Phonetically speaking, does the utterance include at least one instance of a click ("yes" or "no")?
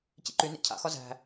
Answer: yes